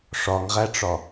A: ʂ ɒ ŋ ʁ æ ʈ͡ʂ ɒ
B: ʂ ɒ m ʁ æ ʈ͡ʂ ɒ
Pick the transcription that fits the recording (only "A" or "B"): A